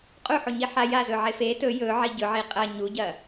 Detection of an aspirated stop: absent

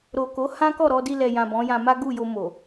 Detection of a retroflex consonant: absent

